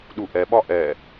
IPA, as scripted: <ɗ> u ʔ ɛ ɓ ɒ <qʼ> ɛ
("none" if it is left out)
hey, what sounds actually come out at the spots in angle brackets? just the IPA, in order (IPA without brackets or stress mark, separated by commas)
ɗ, ʔ